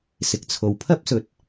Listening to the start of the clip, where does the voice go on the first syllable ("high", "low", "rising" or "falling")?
low